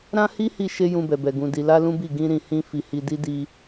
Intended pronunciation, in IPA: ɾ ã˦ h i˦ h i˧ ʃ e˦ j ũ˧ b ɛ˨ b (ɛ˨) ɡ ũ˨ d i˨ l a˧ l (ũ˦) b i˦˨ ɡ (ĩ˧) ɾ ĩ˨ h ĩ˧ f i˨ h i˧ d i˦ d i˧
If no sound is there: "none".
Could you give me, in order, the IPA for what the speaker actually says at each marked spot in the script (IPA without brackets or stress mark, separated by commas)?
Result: ɛ˨, ũ˦, ĩ˧